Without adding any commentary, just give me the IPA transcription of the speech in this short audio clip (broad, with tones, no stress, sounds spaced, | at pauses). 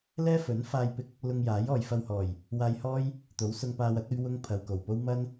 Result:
l ɛː˥ f ɵ˨˥ n f aː˧ j p ɪ˧ k̚ | l ʊ˧ ŋ j aː˨˥ j ɔː˨ j f ɐ˧ w h ɔː˨˩ j | w aː˧ j h ɔː˥ j | t̪ o˨˥ w s ʊ˧ ŋ p aː˧ w ɐ˥ t̚ ɵ˥ ɥ w ʊ˥ ŋ pʰ ɐ˨ w k o˨˩ w p o˥ w m ɐ˥ n